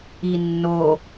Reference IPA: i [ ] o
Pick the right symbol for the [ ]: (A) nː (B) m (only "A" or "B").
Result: A